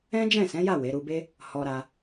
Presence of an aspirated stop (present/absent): absent